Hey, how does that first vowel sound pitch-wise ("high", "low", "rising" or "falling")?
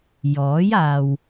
rising